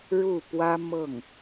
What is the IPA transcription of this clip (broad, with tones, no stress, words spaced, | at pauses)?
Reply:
ɻu˥˩pwä˥ mɤ˥˩ŋ